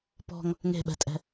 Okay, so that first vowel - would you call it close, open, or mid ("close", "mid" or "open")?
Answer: mid